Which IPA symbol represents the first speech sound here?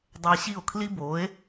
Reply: dˤ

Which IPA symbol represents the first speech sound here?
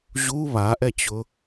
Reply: ʑ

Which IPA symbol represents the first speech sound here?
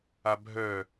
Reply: a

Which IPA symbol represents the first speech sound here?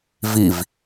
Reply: v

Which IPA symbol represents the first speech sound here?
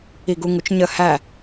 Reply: i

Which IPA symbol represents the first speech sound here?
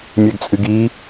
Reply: mʲ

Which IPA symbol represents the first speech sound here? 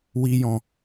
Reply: w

